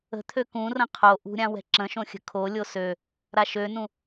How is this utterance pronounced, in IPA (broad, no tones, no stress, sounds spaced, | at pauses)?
ə̤ t̪ʰ ø k ũ r ə̃ qʰ o ʔ ṳ ɾʲ ã w ɛ̤ ǁ ə̃ ʃ õ xʲ ə̤ kʰ o lʲ o s ø | ɾ a ʃ ø n ũ